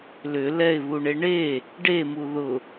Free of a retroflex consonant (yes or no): no